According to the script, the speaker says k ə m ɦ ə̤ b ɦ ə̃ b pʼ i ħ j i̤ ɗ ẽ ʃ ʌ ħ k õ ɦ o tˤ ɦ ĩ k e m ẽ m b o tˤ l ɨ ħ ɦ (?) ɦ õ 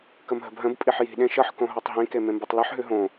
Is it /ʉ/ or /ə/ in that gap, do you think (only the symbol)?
ʉ